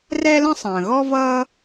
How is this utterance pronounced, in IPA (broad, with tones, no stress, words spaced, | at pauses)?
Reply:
rɛ˥lə̃˥ sˤə̃ː˩ɣɔ˥vʌː˥